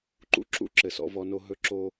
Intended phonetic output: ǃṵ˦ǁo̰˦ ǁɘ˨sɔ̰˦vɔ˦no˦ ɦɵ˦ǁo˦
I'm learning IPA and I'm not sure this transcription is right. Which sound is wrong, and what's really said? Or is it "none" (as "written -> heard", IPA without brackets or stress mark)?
o̰˦ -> ṵ˦